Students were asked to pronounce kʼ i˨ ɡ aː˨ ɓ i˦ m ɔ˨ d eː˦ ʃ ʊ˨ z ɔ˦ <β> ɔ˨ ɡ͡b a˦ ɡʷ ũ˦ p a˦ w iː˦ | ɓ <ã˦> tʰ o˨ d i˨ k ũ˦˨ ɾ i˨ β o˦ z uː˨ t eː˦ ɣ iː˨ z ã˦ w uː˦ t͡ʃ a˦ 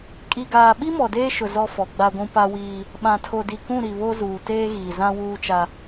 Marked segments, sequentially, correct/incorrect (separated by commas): incorrect, incorrect